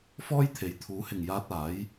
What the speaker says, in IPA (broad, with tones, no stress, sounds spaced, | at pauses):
f ɔː˥ j t̪ʰ e˨˥ j t̪ʰ uː˨˥ h ɪ˨ ŋ j aː˧ t̚ aː˨˥ j